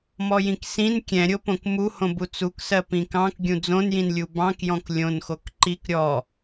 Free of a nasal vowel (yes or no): no